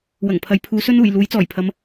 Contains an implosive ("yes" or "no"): no